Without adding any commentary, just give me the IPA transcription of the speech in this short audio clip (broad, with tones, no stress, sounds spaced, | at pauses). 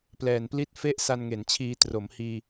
p l ɛː˨˩ n p l i˥˩ t̚ f e˥˩ ʔ s a˧ n ŋ e˩˦ n t͡ɕʰ iː˧ t r o˩˦ m h iː˧